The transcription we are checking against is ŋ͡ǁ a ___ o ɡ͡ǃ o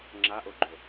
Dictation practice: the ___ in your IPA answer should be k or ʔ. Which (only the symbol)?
ʔ